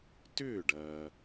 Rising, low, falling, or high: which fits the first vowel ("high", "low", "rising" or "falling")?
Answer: falling